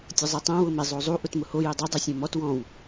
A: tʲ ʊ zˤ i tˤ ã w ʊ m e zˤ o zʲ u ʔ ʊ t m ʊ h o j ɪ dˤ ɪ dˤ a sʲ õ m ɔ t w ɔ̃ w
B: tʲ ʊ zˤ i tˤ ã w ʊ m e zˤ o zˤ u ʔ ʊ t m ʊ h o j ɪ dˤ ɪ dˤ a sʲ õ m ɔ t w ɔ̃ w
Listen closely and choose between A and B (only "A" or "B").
B